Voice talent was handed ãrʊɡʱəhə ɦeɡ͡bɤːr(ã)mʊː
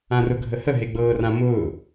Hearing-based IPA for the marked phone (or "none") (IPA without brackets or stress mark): ã